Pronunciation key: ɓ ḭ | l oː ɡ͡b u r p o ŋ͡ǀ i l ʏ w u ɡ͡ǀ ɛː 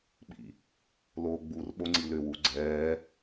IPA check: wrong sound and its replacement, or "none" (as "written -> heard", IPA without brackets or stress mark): p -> ɓ